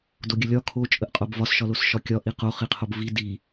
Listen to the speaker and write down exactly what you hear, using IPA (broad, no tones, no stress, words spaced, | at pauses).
doɡʲəlʲɒ kʰo t͡ʃʼəʔqʼobvɒs ʃɒlosʃɒkʲɒ ʔiqo χiqʰobvi di